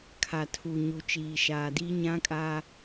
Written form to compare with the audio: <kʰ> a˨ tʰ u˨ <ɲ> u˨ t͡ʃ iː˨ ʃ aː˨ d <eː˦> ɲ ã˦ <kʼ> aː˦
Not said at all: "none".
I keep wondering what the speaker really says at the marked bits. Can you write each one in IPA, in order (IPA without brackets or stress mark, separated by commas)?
kʰ, ɲ, iː˦, kʼ